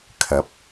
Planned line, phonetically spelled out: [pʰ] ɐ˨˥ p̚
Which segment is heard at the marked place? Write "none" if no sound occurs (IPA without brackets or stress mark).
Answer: kʰ